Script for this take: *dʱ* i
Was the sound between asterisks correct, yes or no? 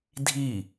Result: yes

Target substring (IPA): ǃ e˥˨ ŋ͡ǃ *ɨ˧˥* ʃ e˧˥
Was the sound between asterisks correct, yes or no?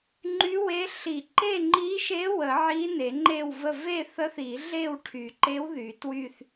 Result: no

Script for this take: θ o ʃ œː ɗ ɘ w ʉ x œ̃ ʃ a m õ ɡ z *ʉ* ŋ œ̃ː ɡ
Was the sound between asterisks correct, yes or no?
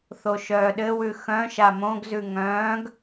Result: yes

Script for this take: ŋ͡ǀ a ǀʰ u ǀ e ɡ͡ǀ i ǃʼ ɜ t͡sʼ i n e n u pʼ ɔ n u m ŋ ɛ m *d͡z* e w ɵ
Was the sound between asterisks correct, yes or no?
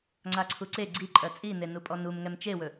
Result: no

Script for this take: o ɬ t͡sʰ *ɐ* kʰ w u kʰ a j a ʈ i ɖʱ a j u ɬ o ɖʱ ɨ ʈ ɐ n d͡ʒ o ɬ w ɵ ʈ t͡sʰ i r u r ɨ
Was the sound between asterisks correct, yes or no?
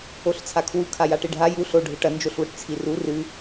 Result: no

